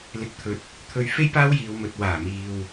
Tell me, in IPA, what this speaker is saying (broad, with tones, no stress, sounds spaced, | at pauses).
l ɪ˧ k̚ t̪ʰ ɵ˧ t̚ | t̪ʰ ɵ˨ ɥ f e˥ j p aː˥ w j iː˨ w m ɵ˨ t̚ w aː˨˩ m iː˨ w